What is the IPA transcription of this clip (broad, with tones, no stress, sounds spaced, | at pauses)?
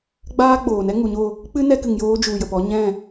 ɡ͡b aː˦ ɡ͡b oː˨ n ɛ˦ ŋ u˨ ɲ o˦˨ | k͡p ɨ˦ n ɛ˧ k ɨ˨ ŋ j oː˧ d͡ʒ u˨ j ə˨ p ɔ˧ ɲ ɛ̃˦˨